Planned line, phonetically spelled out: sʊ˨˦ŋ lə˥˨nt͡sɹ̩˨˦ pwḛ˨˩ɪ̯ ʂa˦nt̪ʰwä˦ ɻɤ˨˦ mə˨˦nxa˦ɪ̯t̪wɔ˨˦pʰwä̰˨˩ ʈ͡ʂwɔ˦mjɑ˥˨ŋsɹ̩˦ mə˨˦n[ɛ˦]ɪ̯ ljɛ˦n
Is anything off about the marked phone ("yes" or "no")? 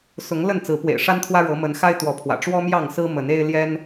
yes